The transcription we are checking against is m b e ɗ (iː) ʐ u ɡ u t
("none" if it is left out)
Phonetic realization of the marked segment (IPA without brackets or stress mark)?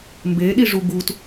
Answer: i